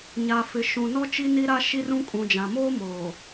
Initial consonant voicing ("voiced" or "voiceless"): voiced